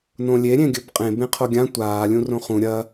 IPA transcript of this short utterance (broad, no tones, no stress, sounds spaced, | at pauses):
n õ lʲ e ɾʲ ẽ ɡʲ ɵ b qʼ ẽ b ẽ qʰ o ɡʲ ã tʷ aː lʲ ũ r õ χ ũ ɾʲ ɐ